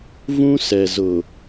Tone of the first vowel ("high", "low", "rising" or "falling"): high